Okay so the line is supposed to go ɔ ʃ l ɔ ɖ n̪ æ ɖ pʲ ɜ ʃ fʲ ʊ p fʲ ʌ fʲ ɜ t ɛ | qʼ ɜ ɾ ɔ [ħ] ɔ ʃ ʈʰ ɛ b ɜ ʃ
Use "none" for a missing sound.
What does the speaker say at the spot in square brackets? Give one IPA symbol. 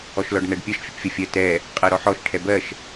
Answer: ħ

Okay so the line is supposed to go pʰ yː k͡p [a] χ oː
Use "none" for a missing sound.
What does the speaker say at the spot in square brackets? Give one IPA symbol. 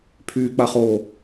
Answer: a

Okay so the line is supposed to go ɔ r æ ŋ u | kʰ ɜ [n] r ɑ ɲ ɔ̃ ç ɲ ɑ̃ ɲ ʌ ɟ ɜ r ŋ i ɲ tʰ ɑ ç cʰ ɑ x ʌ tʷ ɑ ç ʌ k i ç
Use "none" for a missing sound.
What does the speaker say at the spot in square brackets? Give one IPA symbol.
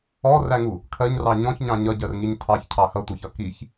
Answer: ɲ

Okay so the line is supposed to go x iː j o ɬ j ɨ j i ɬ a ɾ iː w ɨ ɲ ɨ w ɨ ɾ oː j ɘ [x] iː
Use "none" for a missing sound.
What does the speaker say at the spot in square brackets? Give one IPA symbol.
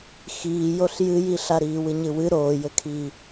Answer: kʰ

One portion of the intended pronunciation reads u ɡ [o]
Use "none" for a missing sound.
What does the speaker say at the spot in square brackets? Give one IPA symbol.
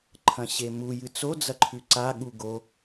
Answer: o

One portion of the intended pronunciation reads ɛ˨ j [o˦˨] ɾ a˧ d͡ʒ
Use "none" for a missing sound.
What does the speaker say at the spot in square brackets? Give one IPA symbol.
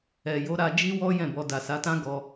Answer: o˨˦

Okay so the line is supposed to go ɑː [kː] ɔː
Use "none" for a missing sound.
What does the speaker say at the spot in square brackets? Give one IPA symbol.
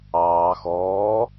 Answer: x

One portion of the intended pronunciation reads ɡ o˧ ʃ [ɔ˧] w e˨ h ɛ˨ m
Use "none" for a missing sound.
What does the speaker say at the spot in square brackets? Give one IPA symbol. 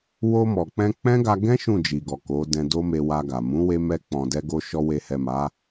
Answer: ɔ˧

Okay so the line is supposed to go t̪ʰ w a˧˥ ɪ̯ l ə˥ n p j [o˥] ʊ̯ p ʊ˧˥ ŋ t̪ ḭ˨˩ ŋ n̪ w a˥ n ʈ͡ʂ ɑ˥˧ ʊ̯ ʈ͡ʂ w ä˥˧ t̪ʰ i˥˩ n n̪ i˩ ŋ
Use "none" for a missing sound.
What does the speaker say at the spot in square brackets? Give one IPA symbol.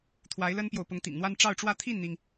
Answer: o˨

